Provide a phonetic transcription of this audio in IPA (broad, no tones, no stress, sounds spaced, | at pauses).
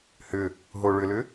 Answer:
h ʏ | ɦ o ɭ ʏ l ʏ